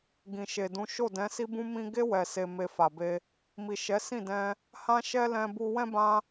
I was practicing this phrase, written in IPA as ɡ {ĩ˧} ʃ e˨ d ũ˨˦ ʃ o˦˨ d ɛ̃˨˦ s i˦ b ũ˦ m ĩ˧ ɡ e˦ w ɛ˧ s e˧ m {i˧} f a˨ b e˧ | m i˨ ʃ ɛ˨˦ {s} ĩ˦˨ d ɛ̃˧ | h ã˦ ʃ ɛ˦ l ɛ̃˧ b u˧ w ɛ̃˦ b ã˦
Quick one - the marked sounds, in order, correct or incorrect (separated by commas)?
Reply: incorrect, incorrect, correct